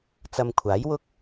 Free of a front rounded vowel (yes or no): yes